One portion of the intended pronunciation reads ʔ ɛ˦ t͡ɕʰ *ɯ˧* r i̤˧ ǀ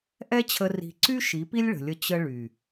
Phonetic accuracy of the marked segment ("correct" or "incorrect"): incorrect